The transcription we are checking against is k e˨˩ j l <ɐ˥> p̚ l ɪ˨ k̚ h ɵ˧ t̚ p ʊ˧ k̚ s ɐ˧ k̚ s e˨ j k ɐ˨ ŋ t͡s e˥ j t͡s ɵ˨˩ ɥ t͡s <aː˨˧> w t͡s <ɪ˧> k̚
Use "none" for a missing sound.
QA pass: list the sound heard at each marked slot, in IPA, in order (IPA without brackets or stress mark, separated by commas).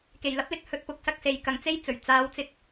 ɐ˥, aː˨˧, ɪ˧